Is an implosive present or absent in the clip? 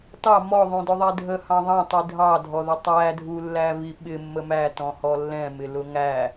present